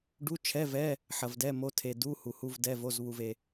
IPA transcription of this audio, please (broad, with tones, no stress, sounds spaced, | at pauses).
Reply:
ɖ u˧˥˧ t͡ʃʰ ɛ˧˥˧ v ɛ˧˥˧ | ħ ɐ˨ v d ɛ˧˥˧ m o˧˥˧ tʰ e˨ d u˧˥˧ h u˨ h u˧˥˧ v d ɛ˧˥˧ v o˧˥˧ z β u˨ v e˨